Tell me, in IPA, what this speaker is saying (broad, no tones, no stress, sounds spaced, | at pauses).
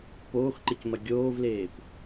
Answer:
p oː x ǃ ɨ c m ɐ ɡʲ oː v l eː p